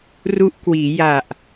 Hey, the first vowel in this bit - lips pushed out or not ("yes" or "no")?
yes